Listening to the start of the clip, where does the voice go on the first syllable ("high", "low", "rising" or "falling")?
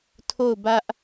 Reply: falling